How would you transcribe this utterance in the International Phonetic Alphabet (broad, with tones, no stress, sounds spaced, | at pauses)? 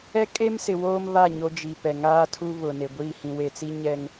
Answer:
ɛ˦ kʼ e˦ m s ɪ˨ w oː˦ m β a˦˨ ɲ o˦ d͡ʒ i˨ p ɛ˨ ŋ aː˦ tʰ u˦ β ʊ˨ n e˨ ɡʷ iː˦˨ h ĩ˨ w e˨ t͡s i˦ ɲ ɛ˦ ŋ